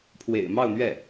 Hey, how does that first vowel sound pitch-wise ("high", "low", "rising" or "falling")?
low